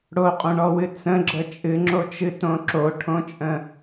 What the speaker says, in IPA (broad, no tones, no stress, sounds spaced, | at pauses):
ɽ o qʼ õ ɳ ɔ w ɨ t͡s ə̃ ɡ͡ǁ ə t͡ʃʼ ɨ ŋ͡ǁ o t͡ʃ ɨ t õ ǁ o ʈʰ õ t͡ʃʼ ə̃